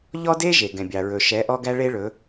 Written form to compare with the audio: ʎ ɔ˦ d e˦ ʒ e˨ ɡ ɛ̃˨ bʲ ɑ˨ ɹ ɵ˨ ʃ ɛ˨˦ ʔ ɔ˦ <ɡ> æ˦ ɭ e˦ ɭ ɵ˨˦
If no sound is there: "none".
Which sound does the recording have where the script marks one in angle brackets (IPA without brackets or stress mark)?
ɡ